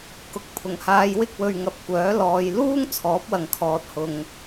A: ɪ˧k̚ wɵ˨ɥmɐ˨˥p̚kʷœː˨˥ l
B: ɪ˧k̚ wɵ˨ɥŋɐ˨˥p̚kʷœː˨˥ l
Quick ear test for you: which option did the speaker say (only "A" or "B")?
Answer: B